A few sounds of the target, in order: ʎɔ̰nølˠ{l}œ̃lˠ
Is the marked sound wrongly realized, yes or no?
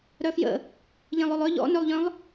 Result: yes